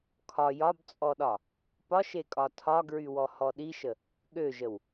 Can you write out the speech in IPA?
kʰɒ jɒbt͡sʼɔɗɒ | pɒʃekʼɒ tʰɒɡɹywɔhɔ ɗiʃə | ɠøʒəw

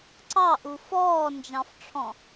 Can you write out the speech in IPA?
ǀɑʔu fɔːnd͡ʒɑ̃fʈ͡ʂʰɔ̃

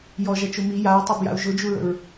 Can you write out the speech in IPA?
jɔʒɐt͡ʃo mi jaɹtˤɛbja̰u̯ ʒʊd͡ʒuɹə̰ɹ

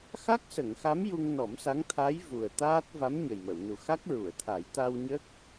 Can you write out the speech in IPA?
xa˦˥k̚sə˨˩˨ŋxa˧˥m ju˧ŋnɔ˨˩˦msa˧˥ŋ t̪ʰa˧˥j vu˨˩ə̯t̪aː˦˥t̚ va˧˥mɲə˨˩jmə˨˩˨wnu˨˩ xa˦˥k̚ɹu˨˩˨ə̯t̪ʰa˨˩˦j t̪a˧wɲə˦˥k̚

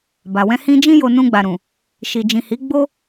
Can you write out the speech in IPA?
ba˨wɛ̃˧ hĩ˧ d͡ʒĩ˦jo˧ nũ˧ɡ͡ba˨ ɾũ˨ | ʃi˨d͡ʒĩ˨hi˨˦ ɡ͡bo˦

